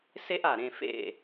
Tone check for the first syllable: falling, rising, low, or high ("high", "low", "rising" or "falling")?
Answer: high